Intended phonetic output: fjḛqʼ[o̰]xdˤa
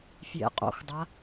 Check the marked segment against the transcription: correct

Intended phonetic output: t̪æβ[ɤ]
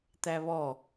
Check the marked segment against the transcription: incorrect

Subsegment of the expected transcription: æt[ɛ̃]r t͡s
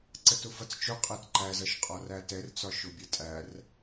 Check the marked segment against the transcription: incorrect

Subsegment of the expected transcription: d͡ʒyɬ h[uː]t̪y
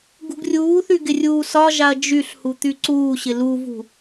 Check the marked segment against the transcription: incorrect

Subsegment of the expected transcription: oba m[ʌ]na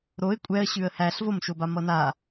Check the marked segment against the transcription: correct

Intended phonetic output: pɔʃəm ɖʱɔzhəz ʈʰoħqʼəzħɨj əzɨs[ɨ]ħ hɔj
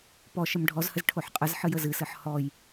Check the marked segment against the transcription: correct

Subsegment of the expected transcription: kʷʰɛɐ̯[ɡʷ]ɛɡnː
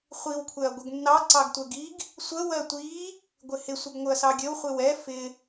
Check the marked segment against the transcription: correct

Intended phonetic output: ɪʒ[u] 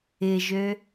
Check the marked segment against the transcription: incorrect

